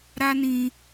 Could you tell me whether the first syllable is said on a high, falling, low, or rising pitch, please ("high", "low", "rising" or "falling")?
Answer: high